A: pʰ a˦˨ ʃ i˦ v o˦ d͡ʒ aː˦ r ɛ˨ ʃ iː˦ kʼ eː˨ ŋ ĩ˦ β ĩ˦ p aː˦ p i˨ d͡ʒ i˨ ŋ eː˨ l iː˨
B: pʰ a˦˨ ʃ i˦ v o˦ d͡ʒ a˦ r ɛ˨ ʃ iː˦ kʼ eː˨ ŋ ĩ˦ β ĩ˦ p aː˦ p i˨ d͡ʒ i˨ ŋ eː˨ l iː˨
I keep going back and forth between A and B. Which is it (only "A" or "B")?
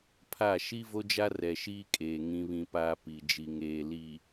B